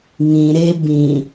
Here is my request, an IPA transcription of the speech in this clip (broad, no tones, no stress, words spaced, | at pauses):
ŋĩ ɾe bĩ